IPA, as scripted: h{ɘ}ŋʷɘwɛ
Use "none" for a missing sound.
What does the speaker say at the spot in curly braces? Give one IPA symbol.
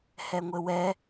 ɛ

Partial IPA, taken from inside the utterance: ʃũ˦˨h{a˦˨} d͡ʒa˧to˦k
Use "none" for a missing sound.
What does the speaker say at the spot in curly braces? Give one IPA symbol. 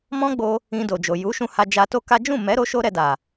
a˧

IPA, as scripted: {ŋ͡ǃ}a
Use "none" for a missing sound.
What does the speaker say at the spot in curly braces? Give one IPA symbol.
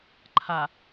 ǃʰ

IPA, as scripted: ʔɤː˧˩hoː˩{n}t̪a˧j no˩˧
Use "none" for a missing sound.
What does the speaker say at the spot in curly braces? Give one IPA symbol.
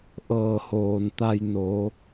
n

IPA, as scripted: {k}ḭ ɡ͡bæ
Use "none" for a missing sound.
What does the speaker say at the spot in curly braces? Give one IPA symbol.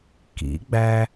k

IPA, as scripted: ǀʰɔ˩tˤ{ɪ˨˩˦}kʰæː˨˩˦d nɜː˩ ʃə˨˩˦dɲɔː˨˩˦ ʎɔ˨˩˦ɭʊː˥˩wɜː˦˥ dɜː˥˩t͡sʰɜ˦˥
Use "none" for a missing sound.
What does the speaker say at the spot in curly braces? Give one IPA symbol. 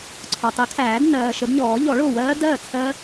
ɪ˨˩˦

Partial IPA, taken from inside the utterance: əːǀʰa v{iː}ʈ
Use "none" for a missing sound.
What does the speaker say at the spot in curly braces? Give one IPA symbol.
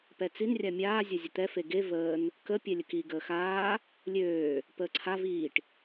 iː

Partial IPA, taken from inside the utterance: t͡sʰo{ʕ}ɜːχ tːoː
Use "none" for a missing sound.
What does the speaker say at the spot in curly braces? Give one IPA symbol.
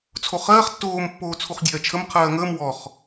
χ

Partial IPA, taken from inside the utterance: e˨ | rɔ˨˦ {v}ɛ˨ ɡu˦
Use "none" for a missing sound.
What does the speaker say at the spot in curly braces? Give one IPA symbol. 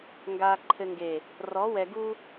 w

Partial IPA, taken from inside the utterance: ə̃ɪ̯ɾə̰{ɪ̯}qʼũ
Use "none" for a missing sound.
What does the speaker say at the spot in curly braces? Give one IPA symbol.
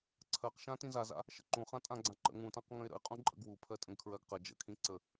ɪ̯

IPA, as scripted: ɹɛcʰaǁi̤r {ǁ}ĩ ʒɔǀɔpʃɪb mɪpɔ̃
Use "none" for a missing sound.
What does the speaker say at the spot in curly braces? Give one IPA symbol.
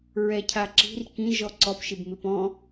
k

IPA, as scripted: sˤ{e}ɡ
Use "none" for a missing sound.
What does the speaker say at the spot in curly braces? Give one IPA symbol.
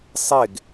e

